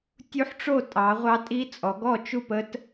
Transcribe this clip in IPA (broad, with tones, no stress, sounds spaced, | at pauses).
tʲ u˦˥ ħ ʈ͡ʂ o˥˨ tʼ ɑ˩˧ ʁʷ ɑ˦˥ tʼ i˦˥ t͡sʼ ɔ˩˧ ɡ ɔ˥˨ t͡ʃ u˥˨ p ə˦˥ t